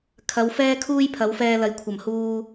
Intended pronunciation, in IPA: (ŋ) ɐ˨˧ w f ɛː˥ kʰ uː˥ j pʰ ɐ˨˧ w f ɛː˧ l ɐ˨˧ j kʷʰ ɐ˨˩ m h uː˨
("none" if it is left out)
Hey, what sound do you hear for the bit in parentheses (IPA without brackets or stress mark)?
kʰ